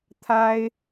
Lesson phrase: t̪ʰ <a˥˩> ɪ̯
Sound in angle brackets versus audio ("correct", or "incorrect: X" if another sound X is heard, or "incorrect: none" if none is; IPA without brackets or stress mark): incorrect: a˥